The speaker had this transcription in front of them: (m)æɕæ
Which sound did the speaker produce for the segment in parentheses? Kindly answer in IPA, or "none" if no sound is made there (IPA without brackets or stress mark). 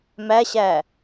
m